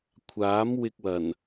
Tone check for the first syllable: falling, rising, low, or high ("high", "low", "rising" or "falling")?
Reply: rising